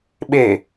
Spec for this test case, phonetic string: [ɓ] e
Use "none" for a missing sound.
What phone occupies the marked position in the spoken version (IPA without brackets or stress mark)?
ɓ